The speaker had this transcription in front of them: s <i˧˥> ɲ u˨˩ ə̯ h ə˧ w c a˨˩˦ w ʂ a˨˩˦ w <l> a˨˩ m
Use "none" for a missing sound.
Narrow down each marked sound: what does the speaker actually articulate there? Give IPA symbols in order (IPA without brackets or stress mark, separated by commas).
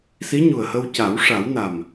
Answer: i˧˥, n